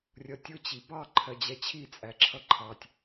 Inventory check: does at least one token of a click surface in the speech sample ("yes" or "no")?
yes